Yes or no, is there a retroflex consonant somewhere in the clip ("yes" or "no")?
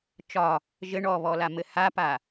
yes